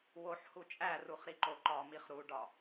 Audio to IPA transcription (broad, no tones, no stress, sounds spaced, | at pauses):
w o ħ h u t͡ʃʼ æ r u χ ɾ i ǃ o ǃ ɒ m i χ ɾ u ɖ ɒ